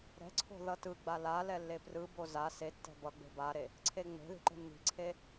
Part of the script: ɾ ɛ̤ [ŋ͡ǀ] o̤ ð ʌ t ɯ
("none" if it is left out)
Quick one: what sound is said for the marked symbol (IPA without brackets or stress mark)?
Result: ǀʰ